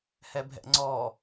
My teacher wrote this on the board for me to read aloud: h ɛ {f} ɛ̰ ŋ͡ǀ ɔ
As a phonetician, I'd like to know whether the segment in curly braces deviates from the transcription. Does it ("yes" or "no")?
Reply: yes